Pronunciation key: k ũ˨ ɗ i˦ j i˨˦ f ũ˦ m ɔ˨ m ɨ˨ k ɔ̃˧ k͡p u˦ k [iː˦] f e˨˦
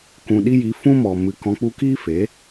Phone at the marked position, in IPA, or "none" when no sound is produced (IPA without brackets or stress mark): iː˦